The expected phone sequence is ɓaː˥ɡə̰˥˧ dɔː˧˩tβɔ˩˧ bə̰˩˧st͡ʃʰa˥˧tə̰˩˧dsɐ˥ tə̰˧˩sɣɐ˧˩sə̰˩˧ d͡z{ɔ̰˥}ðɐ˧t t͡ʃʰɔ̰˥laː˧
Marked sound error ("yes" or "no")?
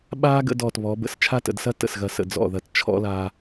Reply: yes